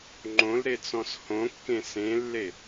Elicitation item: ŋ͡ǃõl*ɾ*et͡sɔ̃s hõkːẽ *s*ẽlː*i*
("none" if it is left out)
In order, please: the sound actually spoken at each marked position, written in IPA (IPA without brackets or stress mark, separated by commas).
ɾ, s, e